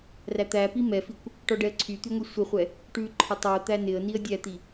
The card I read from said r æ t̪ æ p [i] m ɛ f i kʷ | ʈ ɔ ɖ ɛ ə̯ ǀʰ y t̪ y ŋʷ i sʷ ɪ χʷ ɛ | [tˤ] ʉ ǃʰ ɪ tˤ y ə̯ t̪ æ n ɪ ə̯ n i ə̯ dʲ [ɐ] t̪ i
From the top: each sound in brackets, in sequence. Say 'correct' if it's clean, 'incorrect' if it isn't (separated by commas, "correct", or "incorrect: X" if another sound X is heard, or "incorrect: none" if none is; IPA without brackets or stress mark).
correct, incorrect: ʈ, incorrect: æ